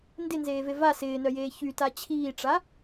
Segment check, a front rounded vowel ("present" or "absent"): present